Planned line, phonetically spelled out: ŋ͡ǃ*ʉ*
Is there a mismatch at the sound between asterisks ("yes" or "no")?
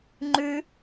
no